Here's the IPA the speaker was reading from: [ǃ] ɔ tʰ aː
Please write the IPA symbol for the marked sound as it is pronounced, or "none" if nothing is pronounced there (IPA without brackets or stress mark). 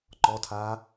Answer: ǃ